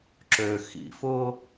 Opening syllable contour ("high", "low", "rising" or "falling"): low